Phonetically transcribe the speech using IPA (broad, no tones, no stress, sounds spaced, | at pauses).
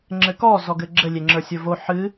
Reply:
ŋ͡ǁ ɘ k ɔ z ɔ ɡ ɘ ɡ͡ǁ ɘ lʲ e ŋ͡ǁ ə˞ sʲ ə˞ v o ħ ɨ